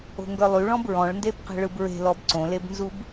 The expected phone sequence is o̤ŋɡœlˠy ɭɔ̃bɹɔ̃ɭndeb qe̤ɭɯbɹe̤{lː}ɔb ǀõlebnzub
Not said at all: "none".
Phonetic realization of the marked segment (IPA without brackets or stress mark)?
l